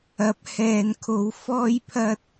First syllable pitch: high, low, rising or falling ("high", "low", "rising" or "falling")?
rising